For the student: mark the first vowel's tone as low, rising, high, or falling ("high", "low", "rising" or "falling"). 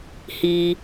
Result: high